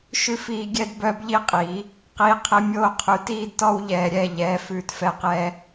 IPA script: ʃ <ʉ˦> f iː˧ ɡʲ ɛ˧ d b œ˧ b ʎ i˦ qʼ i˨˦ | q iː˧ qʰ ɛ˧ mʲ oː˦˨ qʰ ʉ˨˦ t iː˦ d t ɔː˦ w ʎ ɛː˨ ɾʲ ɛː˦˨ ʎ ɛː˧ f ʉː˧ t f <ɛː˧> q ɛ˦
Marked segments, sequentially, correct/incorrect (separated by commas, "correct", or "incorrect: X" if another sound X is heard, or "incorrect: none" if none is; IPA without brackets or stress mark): correct, incorrect: ɛ˧